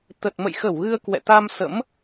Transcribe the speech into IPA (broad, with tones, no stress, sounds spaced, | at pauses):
t̪ ə˨˩ t̚ m ə̰˧˨ j x ə˧˩ w ɣ ɨ˧ ə̯ k w ɛ̰˧˨ t̪ a˧ m s ə̰˧˥ m